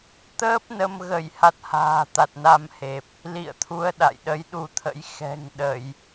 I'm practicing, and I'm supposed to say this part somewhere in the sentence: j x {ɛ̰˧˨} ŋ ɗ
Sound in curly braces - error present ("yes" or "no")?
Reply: yes